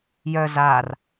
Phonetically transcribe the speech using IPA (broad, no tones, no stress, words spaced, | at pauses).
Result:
jœ zaːr